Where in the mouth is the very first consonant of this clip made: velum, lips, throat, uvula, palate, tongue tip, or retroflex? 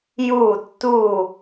palate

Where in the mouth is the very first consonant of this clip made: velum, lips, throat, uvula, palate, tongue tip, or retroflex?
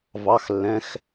lips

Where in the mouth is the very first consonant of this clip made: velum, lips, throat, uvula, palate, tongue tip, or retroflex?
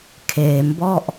velum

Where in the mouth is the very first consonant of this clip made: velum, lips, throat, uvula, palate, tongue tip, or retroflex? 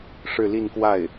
retroflex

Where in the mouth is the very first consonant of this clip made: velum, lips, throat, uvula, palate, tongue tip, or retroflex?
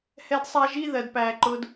throat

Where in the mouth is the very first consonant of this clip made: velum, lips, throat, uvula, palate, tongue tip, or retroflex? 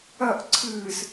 throat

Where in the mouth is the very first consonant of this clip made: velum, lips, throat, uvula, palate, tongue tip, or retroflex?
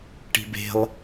retroflex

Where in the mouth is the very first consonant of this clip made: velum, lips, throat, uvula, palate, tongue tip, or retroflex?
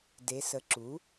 tongue tip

